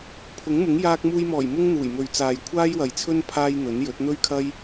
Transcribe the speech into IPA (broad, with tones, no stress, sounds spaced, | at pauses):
pʰ ʊ˨˥ ŋ m ʊ˨˥ ŋ j aː˧ k̚ m uː˧ j m ɔː˨˩ j m ʊ˥ ŋ n̪ uː˨˩ j m ɵ˨ ɥ t͡s aː˨ j kʷʰ aː˥ j w ɐ˨ j t͡sʰ ɵ˥ n pʰ aː˥ j n̪ ɵ˨˥ n j ɵ˨˥ t̚ n̪ ɵ˥ ɥ kʰ ɐ˥ j